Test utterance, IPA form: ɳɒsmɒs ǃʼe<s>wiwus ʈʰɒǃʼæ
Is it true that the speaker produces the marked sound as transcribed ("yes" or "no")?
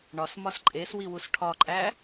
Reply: yes